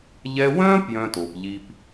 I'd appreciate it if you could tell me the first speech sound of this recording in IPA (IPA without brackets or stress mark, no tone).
ʎ